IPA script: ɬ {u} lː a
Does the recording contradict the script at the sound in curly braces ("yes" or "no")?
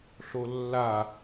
yes